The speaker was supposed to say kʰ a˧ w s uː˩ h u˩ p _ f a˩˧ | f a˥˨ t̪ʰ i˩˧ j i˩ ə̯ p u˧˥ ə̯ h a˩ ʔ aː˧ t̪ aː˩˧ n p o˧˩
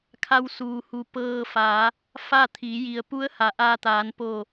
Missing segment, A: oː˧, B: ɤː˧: B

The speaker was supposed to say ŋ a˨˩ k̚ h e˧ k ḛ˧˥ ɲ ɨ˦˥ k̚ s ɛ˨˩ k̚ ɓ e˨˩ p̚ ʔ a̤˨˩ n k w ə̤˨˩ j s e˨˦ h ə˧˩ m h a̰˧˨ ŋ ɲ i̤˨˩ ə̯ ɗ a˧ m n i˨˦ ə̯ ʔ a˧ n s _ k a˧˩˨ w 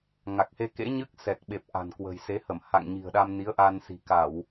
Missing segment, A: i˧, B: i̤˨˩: B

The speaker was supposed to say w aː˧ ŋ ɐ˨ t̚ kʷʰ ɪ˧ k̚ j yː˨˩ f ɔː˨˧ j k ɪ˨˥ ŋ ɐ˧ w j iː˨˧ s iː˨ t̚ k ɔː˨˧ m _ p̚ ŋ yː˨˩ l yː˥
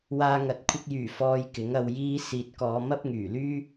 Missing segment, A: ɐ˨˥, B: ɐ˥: B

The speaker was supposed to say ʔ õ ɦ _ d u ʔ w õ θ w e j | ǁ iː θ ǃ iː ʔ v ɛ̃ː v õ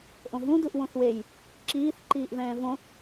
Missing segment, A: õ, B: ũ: B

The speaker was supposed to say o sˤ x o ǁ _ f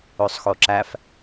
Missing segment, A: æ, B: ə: A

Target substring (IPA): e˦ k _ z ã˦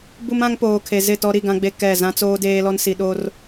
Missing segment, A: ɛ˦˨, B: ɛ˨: A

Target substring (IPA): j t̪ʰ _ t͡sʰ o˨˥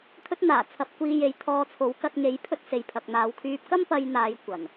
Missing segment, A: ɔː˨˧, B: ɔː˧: B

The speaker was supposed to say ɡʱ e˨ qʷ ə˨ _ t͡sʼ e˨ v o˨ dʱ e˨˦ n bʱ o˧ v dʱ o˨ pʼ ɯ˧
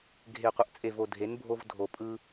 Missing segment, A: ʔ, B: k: A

